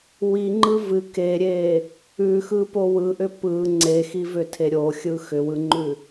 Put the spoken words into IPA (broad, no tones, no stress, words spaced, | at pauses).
wiŋ͡ǃɯ vɨ keɾʲe | ʉxɯpo wɯʔʏ pɯ ŋ͡ǀexivʏtʰe ɾʲoxʲɯ xʏwɯŋ͡ǃʉ